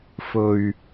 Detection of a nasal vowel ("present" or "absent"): absent